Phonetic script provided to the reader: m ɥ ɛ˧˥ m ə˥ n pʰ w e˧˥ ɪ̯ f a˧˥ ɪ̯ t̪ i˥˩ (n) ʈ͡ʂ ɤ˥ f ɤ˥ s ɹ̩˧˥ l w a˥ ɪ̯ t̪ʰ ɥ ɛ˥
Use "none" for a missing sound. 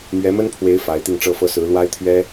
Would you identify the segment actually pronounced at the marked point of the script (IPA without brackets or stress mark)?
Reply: ŋ